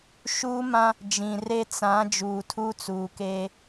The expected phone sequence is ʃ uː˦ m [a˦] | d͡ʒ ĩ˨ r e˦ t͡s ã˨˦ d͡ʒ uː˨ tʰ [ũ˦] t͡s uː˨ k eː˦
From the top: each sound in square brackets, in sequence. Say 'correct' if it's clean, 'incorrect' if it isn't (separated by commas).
incorrect, incorrect